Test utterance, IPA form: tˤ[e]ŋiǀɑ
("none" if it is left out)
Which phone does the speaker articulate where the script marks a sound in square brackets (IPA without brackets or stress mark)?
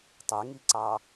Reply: e